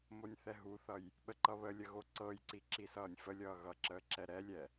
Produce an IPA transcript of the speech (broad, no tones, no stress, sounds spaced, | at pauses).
m o nʲ θ ɛ ɦ u θ ʌ j | ɓ ə ǃ ʌ β ə lʲ ə ɣ o ǀ ɤ j ǀ i ǁ i s ʌː nʲ f ə lʲ ʌː ɣ ʌ ǁ əː ǁ ɛ ɾ ɛ lʲ ɛ